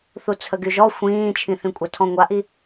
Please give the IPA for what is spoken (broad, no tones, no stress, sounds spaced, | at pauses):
θ u t͡sʰ ə ɡ y ʒ ɔ xʷ ĩː t͡ʃʰ ĩ θ ĩ kʷʼ a tʰ ɔ̃ ŋʷ a ʔ i